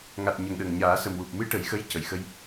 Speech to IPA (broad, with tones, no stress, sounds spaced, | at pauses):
ŋ a˨˩ t̚ ɲ ə˨˩ ŋ ɗ ə˨˩ ŋ ɲ aː˨˩˦ s ə˨˩ m w u˨˩ p̚ m ɨ˧˥ ʈ ə˨˩˦ j x ə˧˥ j c ə˨˩˨ j x ə˧ j